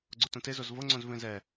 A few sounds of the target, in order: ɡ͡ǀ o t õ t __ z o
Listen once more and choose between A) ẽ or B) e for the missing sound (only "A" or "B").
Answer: B